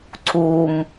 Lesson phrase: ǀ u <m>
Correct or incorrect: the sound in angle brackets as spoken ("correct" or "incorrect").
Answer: correct